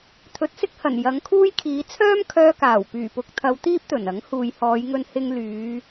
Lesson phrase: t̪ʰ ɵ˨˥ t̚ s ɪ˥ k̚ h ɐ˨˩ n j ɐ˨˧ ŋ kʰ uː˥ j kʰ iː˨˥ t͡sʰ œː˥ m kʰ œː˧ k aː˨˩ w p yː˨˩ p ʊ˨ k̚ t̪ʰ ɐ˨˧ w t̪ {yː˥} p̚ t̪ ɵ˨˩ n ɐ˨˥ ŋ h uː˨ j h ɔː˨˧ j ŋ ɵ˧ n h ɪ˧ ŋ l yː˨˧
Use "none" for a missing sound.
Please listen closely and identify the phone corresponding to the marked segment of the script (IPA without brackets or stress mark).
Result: iː˥